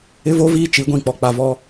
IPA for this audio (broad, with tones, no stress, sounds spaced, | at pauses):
ɪ˦ v o˦ v iː˦ t͡ʃ i˨˦ ɡʷ ĩ˨ k͡p ɔ˨ k͡p a˨ v ɔ˦